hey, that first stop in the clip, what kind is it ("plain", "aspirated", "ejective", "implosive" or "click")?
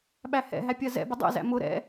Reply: implosive